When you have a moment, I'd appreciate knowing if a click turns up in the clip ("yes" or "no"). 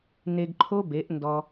yes